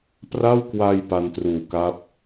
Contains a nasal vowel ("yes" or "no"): no